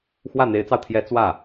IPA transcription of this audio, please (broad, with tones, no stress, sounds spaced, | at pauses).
x w ä˥˩ n̪ e˧˥ ɪ̯ t͡s ɑ˧ ʊ̯ t̪ʰ j ɛ˧˥ t͡s w ä˥˩